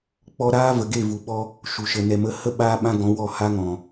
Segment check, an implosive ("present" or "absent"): present